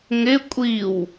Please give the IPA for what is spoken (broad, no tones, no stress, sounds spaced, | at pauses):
ŋ ɪ kʷʼ i w